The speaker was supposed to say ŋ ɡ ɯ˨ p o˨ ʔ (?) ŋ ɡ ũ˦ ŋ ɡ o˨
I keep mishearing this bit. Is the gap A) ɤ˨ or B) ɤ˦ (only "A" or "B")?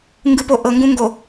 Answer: A